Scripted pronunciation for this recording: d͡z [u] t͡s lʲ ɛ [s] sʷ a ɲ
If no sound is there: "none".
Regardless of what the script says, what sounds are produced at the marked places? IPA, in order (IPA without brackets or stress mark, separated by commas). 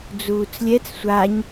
uː, t͡s